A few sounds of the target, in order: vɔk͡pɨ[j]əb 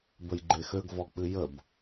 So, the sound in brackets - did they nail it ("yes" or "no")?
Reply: yes